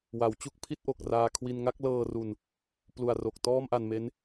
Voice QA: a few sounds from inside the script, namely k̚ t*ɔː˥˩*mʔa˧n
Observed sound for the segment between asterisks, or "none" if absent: ɔː˥˩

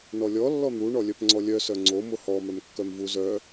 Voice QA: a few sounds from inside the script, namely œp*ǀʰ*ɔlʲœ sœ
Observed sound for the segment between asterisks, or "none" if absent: ŋ͡ǀ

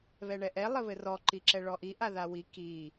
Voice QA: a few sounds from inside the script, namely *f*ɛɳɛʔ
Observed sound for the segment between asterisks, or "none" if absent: β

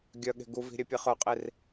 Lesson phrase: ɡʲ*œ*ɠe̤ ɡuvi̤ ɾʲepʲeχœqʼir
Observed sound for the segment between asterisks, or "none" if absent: œ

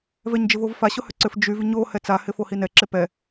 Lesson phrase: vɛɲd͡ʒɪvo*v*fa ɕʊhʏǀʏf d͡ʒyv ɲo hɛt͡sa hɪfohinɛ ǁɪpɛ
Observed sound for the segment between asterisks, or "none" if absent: v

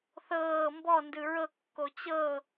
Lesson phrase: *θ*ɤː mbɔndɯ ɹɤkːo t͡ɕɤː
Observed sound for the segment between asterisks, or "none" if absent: θ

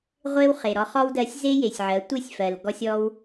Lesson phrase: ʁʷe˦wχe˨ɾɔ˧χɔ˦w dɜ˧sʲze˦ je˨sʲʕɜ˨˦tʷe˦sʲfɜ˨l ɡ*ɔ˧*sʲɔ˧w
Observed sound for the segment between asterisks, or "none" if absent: ɔ˧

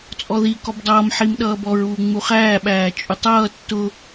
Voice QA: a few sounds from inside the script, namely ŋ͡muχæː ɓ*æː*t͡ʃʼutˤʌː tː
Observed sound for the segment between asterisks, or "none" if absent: æː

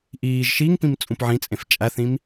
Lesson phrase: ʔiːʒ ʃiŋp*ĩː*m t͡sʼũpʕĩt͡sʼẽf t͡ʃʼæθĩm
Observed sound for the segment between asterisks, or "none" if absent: ĩ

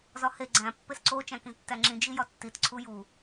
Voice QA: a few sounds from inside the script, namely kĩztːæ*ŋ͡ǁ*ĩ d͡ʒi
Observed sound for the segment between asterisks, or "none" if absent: ŋ͡ǁ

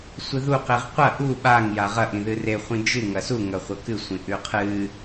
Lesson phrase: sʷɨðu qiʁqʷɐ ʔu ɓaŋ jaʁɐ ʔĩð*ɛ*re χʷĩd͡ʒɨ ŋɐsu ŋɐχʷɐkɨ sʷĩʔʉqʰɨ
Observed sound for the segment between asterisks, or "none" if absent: ɨ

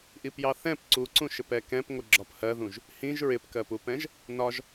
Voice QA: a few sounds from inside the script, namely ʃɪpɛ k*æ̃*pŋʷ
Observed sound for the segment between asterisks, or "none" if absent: ɛ̃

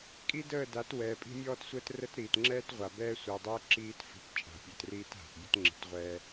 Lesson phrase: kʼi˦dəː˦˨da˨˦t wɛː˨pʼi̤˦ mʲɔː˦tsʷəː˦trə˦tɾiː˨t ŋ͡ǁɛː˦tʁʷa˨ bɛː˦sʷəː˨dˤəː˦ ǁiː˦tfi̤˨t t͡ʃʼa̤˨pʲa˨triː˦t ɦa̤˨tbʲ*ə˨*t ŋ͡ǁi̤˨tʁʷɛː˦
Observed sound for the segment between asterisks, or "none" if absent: ə˦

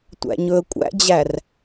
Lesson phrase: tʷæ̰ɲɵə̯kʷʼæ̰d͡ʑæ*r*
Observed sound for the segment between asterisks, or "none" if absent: r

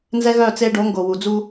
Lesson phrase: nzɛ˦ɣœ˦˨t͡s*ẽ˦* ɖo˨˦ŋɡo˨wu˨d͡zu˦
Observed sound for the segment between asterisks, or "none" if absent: e˦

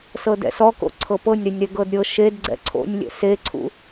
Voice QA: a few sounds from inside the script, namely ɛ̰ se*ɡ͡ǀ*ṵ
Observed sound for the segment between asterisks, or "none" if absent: ǀʰ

